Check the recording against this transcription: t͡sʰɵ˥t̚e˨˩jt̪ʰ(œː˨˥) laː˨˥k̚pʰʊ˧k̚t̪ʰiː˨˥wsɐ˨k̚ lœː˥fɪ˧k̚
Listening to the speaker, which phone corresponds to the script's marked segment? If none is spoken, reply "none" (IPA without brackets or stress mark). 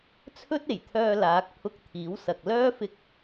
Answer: œː˧